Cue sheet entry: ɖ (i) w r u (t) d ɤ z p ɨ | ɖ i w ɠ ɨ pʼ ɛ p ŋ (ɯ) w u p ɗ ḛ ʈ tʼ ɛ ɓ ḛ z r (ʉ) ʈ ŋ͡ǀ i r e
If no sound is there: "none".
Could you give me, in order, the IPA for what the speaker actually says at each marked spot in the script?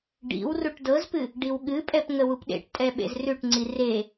ḭ, ʈ, ə, ʉ

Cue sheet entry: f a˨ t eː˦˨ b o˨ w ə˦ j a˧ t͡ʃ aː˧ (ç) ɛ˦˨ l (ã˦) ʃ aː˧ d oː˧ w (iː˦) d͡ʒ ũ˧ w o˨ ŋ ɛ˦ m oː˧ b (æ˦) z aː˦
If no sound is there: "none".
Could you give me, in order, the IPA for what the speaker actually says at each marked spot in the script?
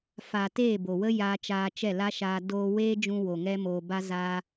t͡ʃ, a˦, eː˦, a˦

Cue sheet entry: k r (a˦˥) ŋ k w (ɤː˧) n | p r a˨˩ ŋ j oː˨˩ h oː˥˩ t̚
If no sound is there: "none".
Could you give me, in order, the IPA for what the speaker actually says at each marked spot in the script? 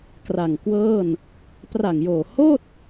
a˨˩, ɤː˥˩

